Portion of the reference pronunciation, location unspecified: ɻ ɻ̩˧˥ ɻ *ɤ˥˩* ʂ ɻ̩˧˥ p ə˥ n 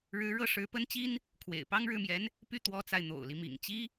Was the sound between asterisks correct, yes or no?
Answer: yes